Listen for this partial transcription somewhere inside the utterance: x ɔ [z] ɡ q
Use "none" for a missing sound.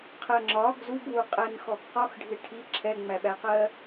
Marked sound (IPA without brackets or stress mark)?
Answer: none